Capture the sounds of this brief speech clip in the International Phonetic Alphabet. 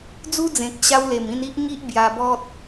d͡zu˦d͡zẽ˨k̚ ɕa˦wle˨˩m ĩ˧ni˦ʔ ŋi˦ʔ bja˧bɔ˦t̚

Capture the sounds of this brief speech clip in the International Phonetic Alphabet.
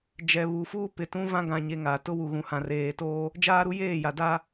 d͡ʒɛ˨βu˨ fuː˦pɪ˨tũ˦ vã˦ɡã˨ɲe˨ ŋa˨ tʊ˦wu˨ɣũ˨hã˨ reː˨toː˦ | d͡ʒaː˦ɾu˦ jeː˦˨ja˨ da˦

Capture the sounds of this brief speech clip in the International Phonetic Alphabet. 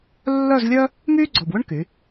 lːœ˥˧zlʲœ˥ | myː˥ɡ͡ǀɔ˨˩bwʏ˥ɳ ky˩˧

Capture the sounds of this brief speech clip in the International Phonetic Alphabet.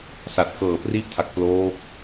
sa˨˩t̚kɤː˨˩pri˦˥ʔtʰa˨˩k̚ ploː˦˥k̚

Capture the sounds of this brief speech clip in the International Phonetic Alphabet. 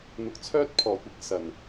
n̪ʊ˨k̚t͡sʰœː˥t̚pʰɔː˨˩kʷɪ˧k̚ sɐ˨˩n

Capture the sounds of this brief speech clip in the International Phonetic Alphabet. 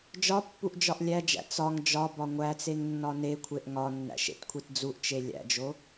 d͡ʒɒ pːuʔd͡ʒɒʔlʲæd͡ʒæ̰ t͡sɒŋ d͡ʒɒ bɒŋʷæt͡seŋ nːɒnekʷʰeʔ ŋɒnːæ̰ʃ ḛtkʷʰitd͡zuʔt͡ʃe lʲæ̰d͡ʒo

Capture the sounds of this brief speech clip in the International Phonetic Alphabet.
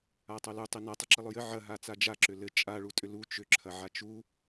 atˤolu tˤinɐ tˤʏǁilˠʏjɘ ʕɐ ɦat͡sad͡ʒa ǁʏlɘ t͡ʃʼa ɭutʼʏlu t͡ʃʏ ǁʰɐʕat͡ʃu

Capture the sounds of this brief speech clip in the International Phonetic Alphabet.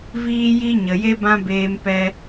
viː˦ji˦ ɲə˨je˦ bã˦beː˧mpɛ˧

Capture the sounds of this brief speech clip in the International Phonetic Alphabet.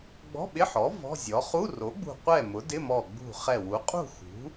ɡ͡bɔ̤˧˥˧ɓɪ˧˥˧ħɔ˩˥ vɔ̤˧˥˧zʲɔ˩˥ χu˧˥˧ro˩˥ɡ͡bṳ˧˩ qʷɛ˥˨ mʊ˩˥dɪ˧˥˧mɔ˧˩ ɡ͡bṳ˧˩χɛ˧˩wu˩˥ qʼṳ˥˨xṳ˩˥

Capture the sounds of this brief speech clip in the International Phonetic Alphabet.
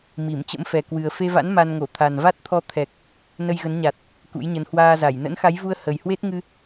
mi˧˩mt͡ɕə̰˧˥mfɛ˨˩kwɨ˨˩ə̯ fe˧va̰˧˥n ma˧n ŋo˧˩t̪ʰa˨˩nva˦˥t̚t̪ʰɔ˧ t̪ʰɛ˨˩k̚ | nə˧jɣə˨˦nɲa˨˩t̚ | kṵ˧˥jɲə˨˦n hwaː˧za˧˩j nə̰˧˥nxa˨˦jvu˧ə̯ hə˨˩jhwe˦˥t̚ŋɨ˧

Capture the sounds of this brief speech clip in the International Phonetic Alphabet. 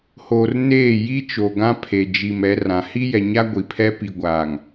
hoː˨r neː˦˨ ji˦t͡ʃo˨ɡã˦ pʰe˨d͡ʒi˨m ɛ˨˦rã˨ hi˦jɛ˨ɲa˦ ɡʷi˨pʰɛ˦ pi˨ɡʷaː˨ŋ

